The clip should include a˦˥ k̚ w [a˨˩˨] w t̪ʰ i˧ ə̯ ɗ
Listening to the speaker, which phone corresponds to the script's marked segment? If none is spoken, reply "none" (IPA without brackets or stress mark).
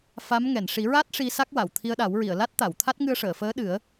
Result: a˨˩˨